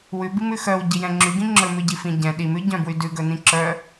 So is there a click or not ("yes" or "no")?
yes